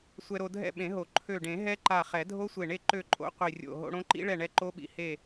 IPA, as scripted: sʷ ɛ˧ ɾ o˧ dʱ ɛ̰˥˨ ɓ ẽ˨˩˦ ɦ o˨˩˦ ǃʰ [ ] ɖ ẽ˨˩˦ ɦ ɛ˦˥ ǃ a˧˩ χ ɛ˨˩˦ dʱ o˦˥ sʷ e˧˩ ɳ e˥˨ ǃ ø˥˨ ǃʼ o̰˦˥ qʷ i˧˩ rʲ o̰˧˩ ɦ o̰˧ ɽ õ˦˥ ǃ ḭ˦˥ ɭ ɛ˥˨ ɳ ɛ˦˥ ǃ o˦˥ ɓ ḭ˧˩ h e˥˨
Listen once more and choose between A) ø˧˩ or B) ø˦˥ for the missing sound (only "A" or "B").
A